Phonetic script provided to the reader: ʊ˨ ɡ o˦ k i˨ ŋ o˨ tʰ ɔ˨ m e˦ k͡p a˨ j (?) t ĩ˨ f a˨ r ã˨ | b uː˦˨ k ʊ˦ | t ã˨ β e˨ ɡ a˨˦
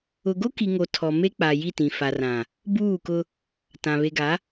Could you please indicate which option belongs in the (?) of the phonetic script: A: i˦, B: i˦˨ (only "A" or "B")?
B